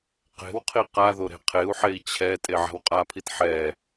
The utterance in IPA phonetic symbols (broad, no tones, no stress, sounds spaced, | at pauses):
q e̤ w qʰ i q a ð o ɾ e̤ qʰ e u̯ ħ e i̯ t͡ɕʰ ɛ tʼ e ʕ a̤ w qʼ a pʰ i t ħ ɛ